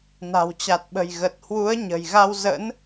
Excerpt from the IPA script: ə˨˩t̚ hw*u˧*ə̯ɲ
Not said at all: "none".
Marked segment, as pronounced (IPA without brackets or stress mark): u˨˦